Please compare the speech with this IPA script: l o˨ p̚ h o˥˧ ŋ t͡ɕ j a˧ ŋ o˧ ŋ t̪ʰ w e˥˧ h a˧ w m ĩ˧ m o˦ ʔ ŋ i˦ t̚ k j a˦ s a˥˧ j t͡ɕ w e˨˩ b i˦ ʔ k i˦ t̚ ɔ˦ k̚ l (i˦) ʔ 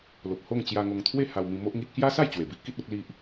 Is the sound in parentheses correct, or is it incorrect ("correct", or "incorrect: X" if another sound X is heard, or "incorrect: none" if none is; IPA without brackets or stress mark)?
correct